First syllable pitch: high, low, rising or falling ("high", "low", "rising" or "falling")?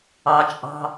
high